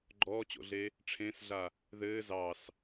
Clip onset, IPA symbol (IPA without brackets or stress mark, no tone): ɡ͡ǃ